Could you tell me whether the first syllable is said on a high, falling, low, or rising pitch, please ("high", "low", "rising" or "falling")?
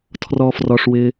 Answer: high